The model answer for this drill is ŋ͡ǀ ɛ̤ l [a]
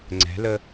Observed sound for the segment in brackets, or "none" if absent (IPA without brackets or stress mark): ə